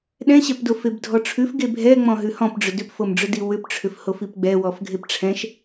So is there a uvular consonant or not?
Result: no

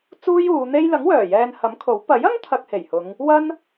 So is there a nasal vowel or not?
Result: no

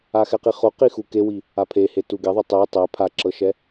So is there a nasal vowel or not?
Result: no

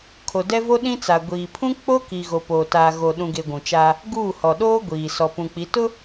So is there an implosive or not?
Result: yes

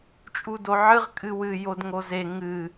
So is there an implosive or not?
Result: no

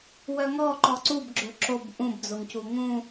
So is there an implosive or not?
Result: no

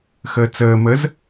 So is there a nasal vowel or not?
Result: no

